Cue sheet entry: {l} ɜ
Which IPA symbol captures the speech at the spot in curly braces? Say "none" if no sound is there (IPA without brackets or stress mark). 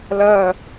l